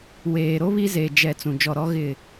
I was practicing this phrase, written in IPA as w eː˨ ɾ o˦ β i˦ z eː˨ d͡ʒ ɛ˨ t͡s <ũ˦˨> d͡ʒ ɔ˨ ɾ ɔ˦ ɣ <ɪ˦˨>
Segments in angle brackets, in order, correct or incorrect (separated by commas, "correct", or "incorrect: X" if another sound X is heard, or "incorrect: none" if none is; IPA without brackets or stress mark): incorrect: ũ˨, correct